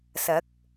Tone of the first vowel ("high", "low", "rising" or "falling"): rising